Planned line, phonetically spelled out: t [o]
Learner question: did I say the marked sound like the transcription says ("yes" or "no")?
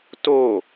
yes